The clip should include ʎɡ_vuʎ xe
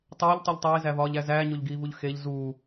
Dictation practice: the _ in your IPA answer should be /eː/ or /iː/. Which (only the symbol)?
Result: iː